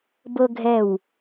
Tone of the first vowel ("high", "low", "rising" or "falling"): high